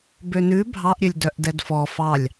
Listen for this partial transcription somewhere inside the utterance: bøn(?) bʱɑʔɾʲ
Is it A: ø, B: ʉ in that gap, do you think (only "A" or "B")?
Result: B